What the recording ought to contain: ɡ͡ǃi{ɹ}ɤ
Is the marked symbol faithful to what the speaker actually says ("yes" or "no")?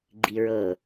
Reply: yes